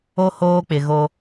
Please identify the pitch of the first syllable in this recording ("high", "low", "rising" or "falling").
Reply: high